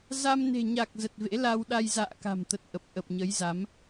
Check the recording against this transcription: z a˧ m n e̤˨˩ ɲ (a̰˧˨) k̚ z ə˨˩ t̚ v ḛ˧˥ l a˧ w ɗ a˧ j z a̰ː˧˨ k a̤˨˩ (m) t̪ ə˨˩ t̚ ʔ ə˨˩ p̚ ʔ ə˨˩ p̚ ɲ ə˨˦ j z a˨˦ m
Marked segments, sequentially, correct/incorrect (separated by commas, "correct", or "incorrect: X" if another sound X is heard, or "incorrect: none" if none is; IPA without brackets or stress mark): incorrect: a˨˩, correct